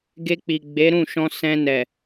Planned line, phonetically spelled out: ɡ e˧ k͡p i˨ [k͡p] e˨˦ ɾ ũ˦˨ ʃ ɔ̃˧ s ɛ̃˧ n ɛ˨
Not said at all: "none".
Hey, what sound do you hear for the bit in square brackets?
ɡ͡b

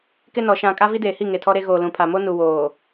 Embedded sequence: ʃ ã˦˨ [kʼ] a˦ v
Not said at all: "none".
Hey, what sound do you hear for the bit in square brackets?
kʼ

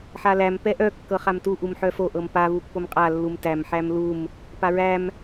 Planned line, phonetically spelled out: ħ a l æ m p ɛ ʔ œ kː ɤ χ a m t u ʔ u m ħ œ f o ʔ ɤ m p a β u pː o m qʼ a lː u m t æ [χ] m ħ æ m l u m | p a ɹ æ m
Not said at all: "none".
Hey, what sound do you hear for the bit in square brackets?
none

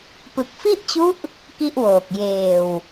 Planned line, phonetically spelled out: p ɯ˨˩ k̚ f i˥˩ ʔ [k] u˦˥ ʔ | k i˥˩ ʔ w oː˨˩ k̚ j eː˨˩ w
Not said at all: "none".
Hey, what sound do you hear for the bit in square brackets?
t͡ɕ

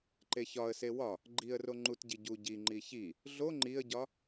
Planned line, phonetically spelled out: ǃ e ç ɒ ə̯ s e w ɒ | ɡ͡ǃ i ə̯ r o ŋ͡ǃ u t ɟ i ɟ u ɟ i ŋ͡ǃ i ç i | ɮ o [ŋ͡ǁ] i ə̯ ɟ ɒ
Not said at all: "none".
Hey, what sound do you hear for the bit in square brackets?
ŋ͡ǃ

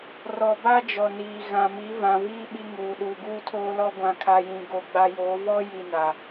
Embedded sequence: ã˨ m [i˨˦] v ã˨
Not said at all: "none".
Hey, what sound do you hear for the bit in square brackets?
i˨˦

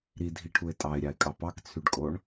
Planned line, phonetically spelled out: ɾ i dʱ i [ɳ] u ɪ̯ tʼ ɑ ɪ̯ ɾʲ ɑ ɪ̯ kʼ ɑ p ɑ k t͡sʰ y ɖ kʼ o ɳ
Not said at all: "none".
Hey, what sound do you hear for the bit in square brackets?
ʈʰ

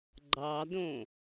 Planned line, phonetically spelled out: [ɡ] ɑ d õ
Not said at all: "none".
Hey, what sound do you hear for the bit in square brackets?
ɡ͡ǃ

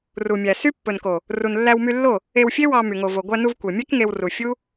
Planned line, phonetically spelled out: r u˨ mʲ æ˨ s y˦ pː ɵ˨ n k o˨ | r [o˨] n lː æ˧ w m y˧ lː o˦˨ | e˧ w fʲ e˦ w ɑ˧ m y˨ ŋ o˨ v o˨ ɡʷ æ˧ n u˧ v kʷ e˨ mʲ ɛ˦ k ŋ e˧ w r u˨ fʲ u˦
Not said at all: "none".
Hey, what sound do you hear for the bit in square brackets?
u˨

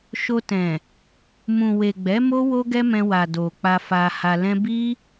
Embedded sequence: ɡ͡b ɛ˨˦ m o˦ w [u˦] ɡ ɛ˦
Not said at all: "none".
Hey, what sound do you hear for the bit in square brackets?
o˦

